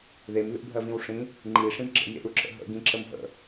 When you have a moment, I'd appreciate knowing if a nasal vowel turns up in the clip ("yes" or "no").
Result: yes